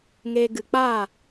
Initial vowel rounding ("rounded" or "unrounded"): unrounded